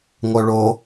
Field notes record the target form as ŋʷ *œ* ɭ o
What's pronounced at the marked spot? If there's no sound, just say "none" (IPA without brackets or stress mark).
œ